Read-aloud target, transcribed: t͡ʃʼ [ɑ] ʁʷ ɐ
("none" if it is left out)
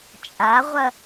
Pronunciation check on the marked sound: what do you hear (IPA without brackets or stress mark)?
a